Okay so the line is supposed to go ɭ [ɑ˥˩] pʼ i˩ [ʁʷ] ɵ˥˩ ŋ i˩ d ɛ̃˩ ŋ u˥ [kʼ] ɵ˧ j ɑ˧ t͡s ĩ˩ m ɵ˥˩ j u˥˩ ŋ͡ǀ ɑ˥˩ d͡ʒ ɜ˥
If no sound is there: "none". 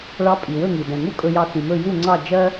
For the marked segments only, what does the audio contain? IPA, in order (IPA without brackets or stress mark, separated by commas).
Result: ɑ˧, w, kʼ